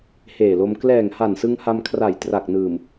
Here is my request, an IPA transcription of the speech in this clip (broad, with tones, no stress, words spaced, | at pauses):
heː˨˩lo˧m klɛː˨˩ŋha˨˩nsɯ˧ŋ ha˧mkʰra˨˩j tra˨˩k̚nɯː˨˩m